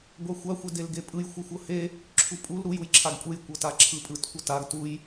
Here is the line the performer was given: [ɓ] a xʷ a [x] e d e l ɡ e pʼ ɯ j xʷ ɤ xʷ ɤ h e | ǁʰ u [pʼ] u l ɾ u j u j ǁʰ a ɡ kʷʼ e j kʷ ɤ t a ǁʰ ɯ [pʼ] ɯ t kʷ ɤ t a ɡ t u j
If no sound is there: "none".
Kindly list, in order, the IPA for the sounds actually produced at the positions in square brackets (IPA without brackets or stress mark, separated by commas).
ɡʷ, xʷ, pʼ, pʼ